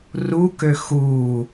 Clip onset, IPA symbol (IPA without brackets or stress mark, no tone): r